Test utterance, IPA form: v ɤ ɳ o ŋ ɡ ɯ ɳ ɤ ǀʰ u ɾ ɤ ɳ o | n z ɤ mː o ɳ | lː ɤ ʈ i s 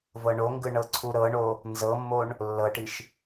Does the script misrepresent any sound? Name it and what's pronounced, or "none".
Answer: s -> ʃ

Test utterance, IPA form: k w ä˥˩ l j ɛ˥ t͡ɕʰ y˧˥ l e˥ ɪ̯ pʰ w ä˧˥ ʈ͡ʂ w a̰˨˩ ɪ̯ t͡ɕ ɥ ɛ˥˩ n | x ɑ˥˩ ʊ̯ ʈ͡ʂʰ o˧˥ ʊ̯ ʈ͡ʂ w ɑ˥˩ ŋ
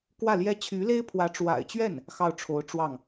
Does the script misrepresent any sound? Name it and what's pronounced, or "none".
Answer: none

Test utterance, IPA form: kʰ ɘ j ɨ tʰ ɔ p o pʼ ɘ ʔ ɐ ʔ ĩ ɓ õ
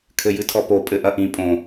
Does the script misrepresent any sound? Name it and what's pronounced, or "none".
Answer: ɓ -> pʼ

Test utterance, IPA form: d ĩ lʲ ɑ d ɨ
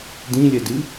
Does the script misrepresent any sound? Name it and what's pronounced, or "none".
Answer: ɑ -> ɐ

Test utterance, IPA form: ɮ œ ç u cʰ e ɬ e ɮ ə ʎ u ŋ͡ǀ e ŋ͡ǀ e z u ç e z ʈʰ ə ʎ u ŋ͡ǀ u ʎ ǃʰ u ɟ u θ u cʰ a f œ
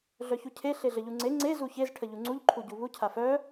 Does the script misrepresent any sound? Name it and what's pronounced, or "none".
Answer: θ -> β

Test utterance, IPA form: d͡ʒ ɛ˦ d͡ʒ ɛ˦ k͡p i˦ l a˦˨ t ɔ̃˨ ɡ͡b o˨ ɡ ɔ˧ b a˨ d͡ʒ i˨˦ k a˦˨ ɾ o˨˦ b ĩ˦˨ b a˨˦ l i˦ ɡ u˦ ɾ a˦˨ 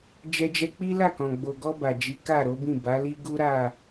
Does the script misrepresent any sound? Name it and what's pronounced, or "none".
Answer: t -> k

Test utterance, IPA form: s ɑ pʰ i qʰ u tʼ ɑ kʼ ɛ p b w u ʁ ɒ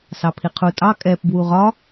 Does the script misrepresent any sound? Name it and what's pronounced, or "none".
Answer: none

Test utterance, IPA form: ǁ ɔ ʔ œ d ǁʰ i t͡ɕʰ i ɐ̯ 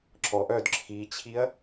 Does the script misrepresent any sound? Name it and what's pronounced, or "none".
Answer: none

